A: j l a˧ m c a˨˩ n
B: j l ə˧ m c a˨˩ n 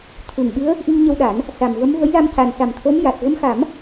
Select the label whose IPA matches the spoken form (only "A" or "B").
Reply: A